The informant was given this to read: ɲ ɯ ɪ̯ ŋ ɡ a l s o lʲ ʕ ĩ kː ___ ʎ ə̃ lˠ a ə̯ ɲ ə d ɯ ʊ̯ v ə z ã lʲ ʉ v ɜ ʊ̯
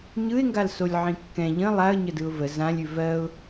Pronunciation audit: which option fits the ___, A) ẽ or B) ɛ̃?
B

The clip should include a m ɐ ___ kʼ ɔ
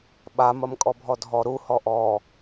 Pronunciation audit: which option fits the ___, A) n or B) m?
B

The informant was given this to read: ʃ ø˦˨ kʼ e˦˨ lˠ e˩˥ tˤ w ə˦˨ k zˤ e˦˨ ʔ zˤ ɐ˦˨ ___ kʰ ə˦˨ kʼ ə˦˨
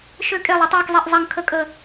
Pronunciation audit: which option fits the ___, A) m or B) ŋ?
B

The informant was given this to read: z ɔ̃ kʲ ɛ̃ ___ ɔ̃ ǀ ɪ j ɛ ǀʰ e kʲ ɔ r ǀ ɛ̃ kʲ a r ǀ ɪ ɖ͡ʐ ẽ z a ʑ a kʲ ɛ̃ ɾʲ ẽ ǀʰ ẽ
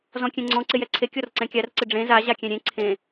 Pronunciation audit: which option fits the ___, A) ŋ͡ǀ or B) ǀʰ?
A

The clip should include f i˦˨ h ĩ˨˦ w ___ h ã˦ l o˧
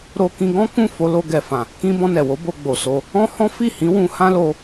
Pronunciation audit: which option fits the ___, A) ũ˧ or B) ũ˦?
A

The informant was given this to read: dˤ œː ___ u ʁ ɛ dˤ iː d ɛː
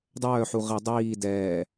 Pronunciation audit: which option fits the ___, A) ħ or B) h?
A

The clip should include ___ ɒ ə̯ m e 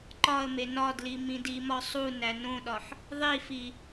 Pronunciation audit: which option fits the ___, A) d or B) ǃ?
B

